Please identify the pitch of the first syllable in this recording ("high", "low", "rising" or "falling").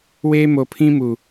high